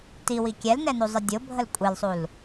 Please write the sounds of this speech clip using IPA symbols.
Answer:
t i w i kʲ ɛ l n ɛ n u zˤ ə dʲ ʊ bʱ ə l kʷʼ e l sˤ u l

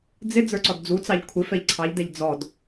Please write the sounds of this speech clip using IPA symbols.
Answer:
d͡z ɪ d͡z ə˞ ǀ ɔ d d͡z u t͡s ɑ ʎ kʷʰ ɪ f ɛ ʎ ǀʰ ɑ ʎ d ɛ ʎ d͡z ɔ d

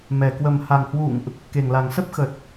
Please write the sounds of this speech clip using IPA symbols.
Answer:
m ɛ˨˩ k w ə˨˩ m h a˨˩ ŋ h w ṵ˧˨ ŋ ʔ | k e˨˩ ŋ l a˨˩ ŋ s ə˦˥ p̚ x ə˨˩ t̚

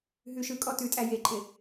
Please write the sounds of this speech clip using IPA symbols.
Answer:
ɦ ʉ ʃ ɯ kʼ ɔ t ʉ tʼ æ j e ǃʼ ɪ

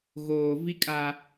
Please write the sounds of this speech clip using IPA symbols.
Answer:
ɣ oː˨ v i˦ kʼ a˨

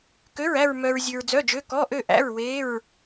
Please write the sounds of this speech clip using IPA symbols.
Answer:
k ø˧˥˧ ɹ æ˥˧ ɹ m œ˧ ɹ zʲ ʉ˧ ɹ d͡z œ˧˥˧ d͡ʒ ø˧˥˧ k ɔ˧˥˧ ʔ ø˥˧ ʔ æ̰˧˥˧ ɹ w e˧˥˧ ɹ

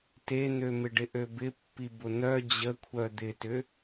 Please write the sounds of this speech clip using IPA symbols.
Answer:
t e n̪ ø m ɪ ɖ ɪ ʔ ø b ɪ pː i b ʊ n̪ œ d͡ʑ ə kʷʰ œ d̪ ɪ t ʏ

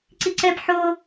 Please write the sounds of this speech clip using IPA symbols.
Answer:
ǀ i ǀ ɛ b ħ o

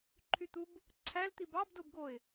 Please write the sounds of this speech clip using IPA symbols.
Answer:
ǃʰ y t̪ u b | ǀʰ æ l t̪ i b ɑ b d o b ɡ o ɪ̯

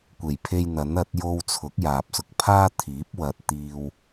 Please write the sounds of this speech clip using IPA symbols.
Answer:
kʷ e˨˩ j pʰ e˧ j n̪ ɐ˨˥ n ɐ˨˥ t̚ j o˥ w t͡sʰ ʊ˨˥ k̚ j aː˨ p̚ s ʊ˧ k̚ pʰ aː˥ t̪ʰ iː˨˥ p̚ w ɐ˨ t̚ t̪ iː˧ w

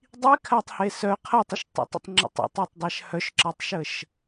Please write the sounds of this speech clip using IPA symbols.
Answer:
dˤ i kʰ a tˤ h e s œ qʰ ɐ tˤ ə ʃ tˤ ə̰ tˤ ə̰ tˤ ŋ͡ǁ ə̰ tˤ ə̰ tˤ ɜ tˤ dˤ a ʃ h œ ʃ ǁ ɜ tˤ ʃ ə ʃ

